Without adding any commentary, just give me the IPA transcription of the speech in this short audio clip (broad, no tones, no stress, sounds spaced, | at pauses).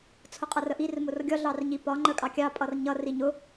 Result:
t͡sʰ ʊ qʼ ʌ r ə ʔ i r m ʊ r ɡʲ ɒ ɮ ɑ r ɲ i p ɒ ŋ͡ǃ ə kʼ ɑ kʲ ɑ pʼ ʌ r ɲ ʌ r i ɲ ʊ